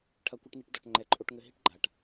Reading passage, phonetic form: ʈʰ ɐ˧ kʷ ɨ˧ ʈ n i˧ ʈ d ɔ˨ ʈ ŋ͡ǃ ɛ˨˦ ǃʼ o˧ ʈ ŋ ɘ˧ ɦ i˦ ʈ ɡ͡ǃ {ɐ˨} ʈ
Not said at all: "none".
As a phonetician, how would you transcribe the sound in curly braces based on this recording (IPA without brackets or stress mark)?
a˨